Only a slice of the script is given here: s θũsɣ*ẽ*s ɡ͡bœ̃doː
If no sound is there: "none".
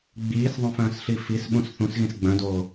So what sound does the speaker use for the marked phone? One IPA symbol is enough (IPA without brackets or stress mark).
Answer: ĩ